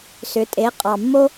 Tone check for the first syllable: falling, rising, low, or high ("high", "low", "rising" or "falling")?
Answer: rising